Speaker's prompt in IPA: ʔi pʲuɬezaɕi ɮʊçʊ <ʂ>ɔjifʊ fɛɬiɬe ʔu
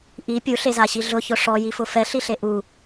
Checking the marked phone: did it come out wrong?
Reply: no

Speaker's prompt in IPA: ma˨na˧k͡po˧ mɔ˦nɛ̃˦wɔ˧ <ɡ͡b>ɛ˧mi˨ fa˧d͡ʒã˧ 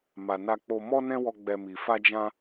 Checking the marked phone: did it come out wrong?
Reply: no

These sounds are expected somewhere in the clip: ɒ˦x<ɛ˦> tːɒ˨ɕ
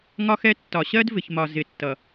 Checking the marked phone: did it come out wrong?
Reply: no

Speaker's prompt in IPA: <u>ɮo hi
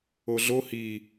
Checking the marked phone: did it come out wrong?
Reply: yes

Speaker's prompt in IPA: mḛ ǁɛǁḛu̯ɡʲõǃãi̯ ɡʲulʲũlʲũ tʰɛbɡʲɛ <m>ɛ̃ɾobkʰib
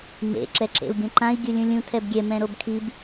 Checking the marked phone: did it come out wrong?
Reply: no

